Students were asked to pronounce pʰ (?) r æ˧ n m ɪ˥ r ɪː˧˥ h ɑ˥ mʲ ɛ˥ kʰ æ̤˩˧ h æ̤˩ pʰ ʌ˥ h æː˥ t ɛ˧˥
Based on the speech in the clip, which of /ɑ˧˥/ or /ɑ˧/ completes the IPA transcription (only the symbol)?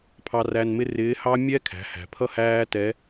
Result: ɑ˧